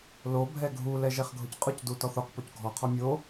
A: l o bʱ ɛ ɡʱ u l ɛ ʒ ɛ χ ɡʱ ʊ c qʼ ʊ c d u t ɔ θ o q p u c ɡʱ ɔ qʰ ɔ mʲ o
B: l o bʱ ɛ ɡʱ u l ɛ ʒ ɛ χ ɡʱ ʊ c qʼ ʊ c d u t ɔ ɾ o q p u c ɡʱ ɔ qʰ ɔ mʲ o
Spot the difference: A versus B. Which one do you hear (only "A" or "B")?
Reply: A